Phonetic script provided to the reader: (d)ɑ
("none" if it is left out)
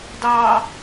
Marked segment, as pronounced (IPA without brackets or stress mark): d